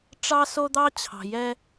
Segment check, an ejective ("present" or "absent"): absent